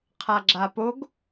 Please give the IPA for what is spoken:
qʰ a ɡ͡ǁ a p o ɡ

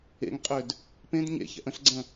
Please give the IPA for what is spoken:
ḛ ŋ qʼ ø d | p ẽ d ɲ ḛ ç ɛ̰ ʔ ə̃ ɬ ɡ͡ǀ ə̃

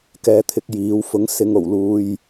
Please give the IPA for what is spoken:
k ɛː˧ t̪ʰ ɪ˧ k̚ j iː˨˧ w f ʊ˨˥ ŋ s ɪ˨ ŋ o˨˩ w l uː˨ j

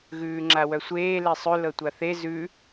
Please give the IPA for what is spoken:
ɣ ʉː ŋ͡ǁ a w œ sʷ eː l e sˤ ʉ l ɤ tʷ a θ e z ʉ

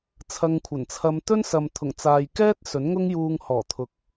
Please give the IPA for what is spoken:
t͡sʰ ɐ˧ ŋ kʷʰ ɐ˨˩ n t͡sʰ ɐ˧ m t̪ ɵ˥ n s ɐ˨ m t̪ʰ ʊ˨˩ ŋ t͡s aː˨ j k ɛː˥ t̚ s ɵ˨˥ n ŋ ʊ˥ ŋ j uː˧ ŋ h ɔː˨˩ t̪ʰ ʊ˨ k̚

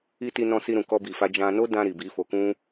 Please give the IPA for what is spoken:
i˧ t i˧ n ɔ̃˧ s i˧ ɾ ũ˨ k ɔ˧ b i˨ f a˧ d͡ʒ ã˧ n o˦ d ã˧ ɾ i˨ b i˨˦ f o˧ k ũ˦

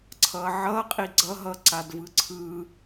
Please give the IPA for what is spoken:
ǀʰ ʌ ʕ ʌ qʼ i ɡ͡ǀ ʌ ɦ ʌ ǀ a d v ɯ ǀʰ ɯ

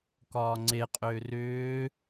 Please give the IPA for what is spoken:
k ɒː ŋ͡ǀ e qʼ ʏː r ʏː

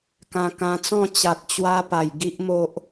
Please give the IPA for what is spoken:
k ã˧ k ã˧ t͡s ɔ̃˥˧ t͡ɕ a˨ t̚ t͡ɕ w a˧ p a˨˩ j ɡ i˦ ʔ m o˦ ʔ

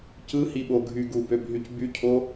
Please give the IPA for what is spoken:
c ɯ h i ɓ o ɡʱ y ɡ u b ø b ɦ y c b y cʰ o

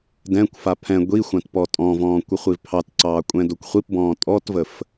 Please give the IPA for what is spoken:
d ɛ̃ kʷ f a pʰ ɛ̃ ɡʷ i xʷ ã t p ɔ tʼ ɔ̃ v ɔ̃ː kʷ ə χʷ i v pʰ ɑ t ǀ ɑː kʷʼ ɛ̃ d o kʷ χʷ i p b ɔ̃ː tʼ ɔ t v ə f

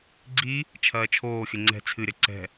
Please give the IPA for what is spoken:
ɡ͡ǀ i | t͡ʃʰ ɐː t͡ʃʰ oː xʲ ɘ ŋ͡ǀ ɛ̤ t͡sʰ ɨ ɾʲ ɐ ǀ ɛ̤

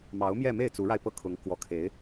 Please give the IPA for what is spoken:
m ɑ˧˥ ʊ̯ m j ɛ˥˧ m e˥˩ ɪ̯ t͡s u˧˥ ɻ a˧ ɪ̯ p ɤ˥˩ kʰ ʊ˧˥ ŋ k w ɔ˧˥ kʰ e˧˥ ɪ̯

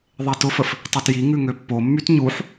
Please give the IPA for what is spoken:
ðˤ e t ʊ f ə f | tˤ y t j i ŋ ʉ ŋ ø pː o mː y t ɲ u ħ

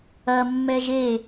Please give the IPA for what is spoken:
ɐ mː ɛ ʒ e

